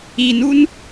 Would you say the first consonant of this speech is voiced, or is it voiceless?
voiced